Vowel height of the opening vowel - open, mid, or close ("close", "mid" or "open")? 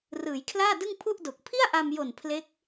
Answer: close